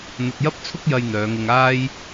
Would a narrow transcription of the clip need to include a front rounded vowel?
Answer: yes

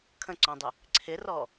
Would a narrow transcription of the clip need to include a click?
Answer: yes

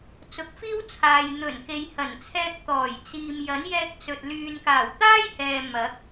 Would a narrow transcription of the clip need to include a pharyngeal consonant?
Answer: no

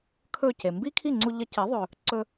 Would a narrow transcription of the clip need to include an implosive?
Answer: no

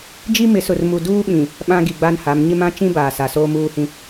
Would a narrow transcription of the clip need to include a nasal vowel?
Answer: yes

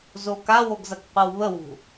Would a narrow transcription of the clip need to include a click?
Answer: no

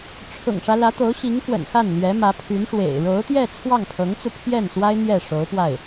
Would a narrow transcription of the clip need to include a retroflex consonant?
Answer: yes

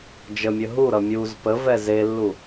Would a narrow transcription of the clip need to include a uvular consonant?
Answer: no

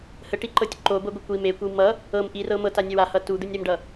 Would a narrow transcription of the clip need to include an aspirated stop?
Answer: no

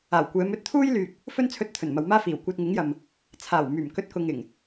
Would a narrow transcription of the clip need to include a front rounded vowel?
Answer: yes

